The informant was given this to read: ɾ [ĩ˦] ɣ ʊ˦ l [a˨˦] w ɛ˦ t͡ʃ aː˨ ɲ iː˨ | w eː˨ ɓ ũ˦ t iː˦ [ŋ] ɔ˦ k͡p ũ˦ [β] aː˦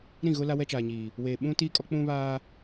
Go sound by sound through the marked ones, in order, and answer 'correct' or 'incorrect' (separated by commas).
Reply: incorrect, incorrect, incorrect, correct